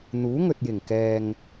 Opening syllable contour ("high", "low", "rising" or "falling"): rising